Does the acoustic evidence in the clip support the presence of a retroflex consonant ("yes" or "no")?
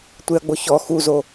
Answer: no